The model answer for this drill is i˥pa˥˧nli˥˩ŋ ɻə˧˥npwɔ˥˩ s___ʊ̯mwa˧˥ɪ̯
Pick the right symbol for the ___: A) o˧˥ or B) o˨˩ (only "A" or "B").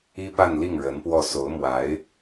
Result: A